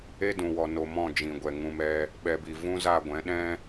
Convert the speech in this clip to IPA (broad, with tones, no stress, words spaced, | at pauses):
e˦dũ˨ wɔ˨no˨ mɔ̃˦˨d͡ʒĩ˨ ɡʷɛ˨ŋũ˧mɛ˦ | ɓɛ˨bi˨ vũ˦za˦˨ ɡʷɛ̃˨˦ɗɛ̃˦